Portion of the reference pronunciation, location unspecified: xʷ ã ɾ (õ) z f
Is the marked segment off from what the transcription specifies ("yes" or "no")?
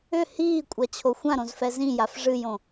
no